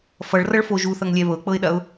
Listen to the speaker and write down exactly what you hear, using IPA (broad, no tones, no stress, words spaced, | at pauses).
fʌɭrʌɭfo ʒuθʌŋlʲɛ βɤk͡pɤɪ̯ɗɐʊ̯